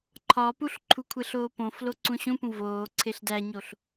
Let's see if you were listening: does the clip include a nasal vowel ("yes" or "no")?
yes